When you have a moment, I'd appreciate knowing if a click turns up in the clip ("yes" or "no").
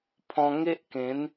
no